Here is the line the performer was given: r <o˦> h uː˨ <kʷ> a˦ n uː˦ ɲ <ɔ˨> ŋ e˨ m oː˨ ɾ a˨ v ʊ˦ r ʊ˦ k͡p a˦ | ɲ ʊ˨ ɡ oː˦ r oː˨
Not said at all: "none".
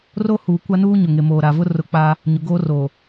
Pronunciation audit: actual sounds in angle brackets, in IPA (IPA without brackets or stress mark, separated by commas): o˦, kʷ, ʊ˨